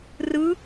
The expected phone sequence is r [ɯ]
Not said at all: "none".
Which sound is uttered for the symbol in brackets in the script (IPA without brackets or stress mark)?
ɯ